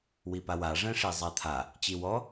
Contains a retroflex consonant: yes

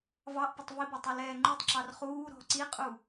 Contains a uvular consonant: yes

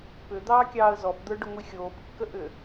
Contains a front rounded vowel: yes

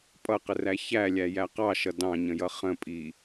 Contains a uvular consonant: yes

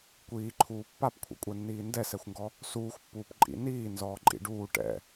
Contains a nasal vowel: no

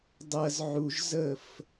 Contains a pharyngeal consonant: yes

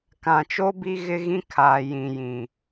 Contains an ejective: no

